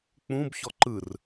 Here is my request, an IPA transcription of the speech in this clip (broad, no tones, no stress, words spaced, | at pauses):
k͡pũb çɔǃɯr